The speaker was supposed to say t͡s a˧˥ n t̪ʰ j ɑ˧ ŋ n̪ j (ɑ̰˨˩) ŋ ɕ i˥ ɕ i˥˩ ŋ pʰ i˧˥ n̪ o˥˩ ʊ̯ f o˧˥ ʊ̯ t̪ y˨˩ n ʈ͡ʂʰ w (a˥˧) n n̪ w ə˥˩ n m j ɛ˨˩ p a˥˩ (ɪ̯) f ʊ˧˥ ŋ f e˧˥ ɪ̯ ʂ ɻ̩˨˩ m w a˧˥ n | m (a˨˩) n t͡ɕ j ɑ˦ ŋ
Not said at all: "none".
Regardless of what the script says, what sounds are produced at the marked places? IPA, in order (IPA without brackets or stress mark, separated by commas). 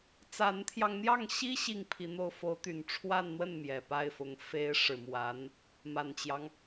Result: ɑ˥˩, a˥˧, ɪ̯, a˨˩